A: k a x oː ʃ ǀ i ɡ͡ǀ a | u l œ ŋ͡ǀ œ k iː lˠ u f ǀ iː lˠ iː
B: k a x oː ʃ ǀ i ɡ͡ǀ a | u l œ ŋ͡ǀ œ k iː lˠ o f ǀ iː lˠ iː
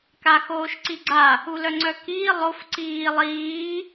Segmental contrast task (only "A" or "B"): B